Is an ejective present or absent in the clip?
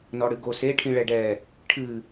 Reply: absent